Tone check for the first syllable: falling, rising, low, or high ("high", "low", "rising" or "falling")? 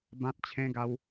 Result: high